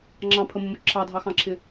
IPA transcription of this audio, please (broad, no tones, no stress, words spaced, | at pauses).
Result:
ŋ͡ǁɑ̃pʰəmʊmʊ ǁʰɑdʱɑxɑ̃ǁʰɪ